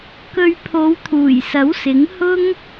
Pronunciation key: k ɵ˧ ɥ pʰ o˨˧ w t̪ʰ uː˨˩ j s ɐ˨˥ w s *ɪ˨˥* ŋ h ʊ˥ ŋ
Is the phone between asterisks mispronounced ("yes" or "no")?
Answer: no